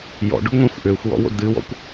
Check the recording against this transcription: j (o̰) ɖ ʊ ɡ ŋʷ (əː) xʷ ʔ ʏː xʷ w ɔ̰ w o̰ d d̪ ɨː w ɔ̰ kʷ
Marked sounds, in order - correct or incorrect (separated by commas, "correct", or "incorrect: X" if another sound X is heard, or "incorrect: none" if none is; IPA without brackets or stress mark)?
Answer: incorrect: ɔ̰, incorrect: ə̃ː